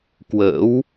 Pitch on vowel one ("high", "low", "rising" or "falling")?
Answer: rising